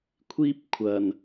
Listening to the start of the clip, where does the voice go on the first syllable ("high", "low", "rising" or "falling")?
high